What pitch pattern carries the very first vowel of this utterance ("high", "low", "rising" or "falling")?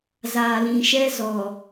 low